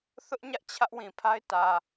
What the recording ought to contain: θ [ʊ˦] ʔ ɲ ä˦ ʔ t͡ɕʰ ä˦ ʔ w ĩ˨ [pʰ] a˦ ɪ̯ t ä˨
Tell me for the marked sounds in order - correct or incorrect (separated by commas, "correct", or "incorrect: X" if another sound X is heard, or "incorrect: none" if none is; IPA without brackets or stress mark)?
correct, correct